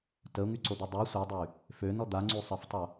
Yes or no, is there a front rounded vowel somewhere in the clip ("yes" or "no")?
yes